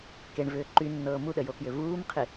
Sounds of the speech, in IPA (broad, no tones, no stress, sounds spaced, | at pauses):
k e ɳ v ʏː ǃ y nː ɤː m u ɗ ə j o k j ʏ v uː m qʰ i